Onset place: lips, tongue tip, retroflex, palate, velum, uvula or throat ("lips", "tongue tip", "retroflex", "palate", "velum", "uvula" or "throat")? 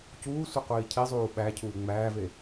palate